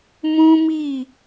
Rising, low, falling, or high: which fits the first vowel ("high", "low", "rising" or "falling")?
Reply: high